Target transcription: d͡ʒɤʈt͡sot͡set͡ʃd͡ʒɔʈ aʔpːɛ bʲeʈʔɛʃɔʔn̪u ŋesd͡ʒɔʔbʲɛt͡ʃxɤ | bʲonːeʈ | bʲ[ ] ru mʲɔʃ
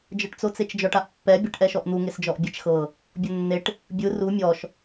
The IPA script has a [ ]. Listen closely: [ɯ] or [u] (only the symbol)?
ɯ